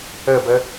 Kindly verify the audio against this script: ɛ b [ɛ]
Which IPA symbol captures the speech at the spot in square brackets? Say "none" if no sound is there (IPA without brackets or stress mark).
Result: ɛ